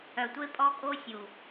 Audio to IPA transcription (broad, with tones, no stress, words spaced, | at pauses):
œ˨tʷe˦pʼɔ˦kʼo˦ sʲu˨